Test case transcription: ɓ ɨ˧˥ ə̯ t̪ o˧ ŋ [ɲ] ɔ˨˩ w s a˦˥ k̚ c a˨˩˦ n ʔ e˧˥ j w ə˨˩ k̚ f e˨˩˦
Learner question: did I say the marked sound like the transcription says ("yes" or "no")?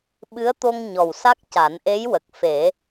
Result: yes